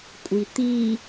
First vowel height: high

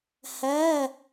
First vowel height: low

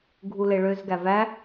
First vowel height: high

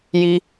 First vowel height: high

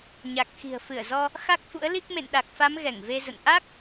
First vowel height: low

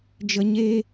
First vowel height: mid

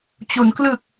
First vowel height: high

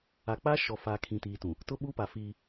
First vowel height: low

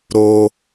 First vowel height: mid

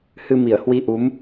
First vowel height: high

